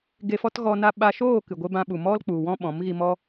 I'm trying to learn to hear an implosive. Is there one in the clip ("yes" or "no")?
yes